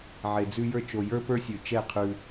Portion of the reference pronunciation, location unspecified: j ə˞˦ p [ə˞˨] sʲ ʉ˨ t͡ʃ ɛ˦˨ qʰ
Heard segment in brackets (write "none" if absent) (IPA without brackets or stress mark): ə˞˦